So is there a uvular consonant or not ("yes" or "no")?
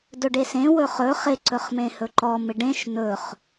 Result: yes